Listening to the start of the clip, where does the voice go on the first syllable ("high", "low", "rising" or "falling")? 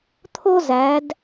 high